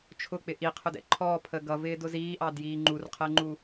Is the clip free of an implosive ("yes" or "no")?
yes